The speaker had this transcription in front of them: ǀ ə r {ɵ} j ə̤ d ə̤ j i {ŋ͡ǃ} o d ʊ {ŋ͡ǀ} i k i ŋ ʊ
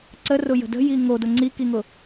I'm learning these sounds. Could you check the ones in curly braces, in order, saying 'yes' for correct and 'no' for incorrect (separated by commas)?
no, no, yes